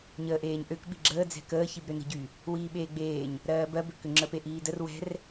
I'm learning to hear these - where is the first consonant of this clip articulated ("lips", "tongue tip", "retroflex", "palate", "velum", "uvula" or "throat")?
palate